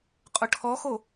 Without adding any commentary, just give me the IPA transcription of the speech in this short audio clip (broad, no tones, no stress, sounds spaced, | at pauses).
qʼ ʊ ʈʰ ɔ x o